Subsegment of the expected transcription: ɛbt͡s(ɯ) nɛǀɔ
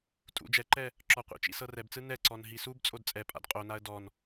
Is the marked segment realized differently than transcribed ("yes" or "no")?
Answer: no